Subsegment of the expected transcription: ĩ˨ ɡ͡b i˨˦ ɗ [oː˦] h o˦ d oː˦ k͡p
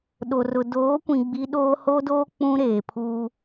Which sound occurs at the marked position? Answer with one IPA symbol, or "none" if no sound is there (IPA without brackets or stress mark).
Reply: oː˦